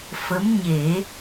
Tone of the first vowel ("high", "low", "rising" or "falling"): rising